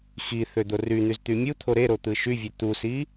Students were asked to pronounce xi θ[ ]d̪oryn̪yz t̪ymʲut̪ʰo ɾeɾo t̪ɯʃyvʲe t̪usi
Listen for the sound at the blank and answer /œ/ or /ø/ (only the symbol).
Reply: ø